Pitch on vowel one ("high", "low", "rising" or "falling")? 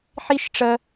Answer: high